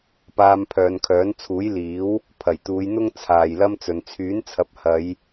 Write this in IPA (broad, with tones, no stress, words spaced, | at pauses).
paː˧mpʰœː˨˧nkʰœː˨˥n t͡sʰuː˨˥jliː˨˥w | pʰɐ˨˩jt̪uː˨˧j n̪ʊ˥ŋ t͡sʰaː˨jlɐ˥mt͡sɵ˨n t͡sʰyː˨˥nt͡sʰɐ˨˥p̚ hɐ˨˧j